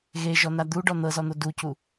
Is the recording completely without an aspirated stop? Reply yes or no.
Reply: yes